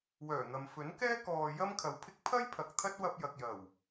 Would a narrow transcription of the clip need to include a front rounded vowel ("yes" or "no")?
yes